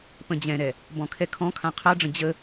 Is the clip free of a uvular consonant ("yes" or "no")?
no